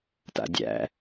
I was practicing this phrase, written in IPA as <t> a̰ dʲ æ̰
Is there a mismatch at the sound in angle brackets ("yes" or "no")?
no